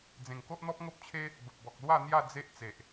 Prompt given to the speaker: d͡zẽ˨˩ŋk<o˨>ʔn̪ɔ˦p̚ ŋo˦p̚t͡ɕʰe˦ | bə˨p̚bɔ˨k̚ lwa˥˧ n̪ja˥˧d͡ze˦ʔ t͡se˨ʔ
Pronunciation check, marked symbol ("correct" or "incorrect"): incorrect